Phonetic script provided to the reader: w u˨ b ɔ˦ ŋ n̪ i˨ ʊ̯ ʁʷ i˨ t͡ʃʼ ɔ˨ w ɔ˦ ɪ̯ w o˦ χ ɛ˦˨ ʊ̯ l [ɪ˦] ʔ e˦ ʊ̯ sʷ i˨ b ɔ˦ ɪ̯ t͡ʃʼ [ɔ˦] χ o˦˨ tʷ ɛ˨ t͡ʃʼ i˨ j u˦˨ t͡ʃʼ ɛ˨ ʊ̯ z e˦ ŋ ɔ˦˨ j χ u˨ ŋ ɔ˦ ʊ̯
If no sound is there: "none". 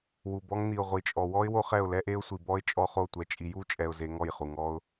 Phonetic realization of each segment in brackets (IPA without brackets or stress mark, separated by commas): ɛ˦, ɔ˦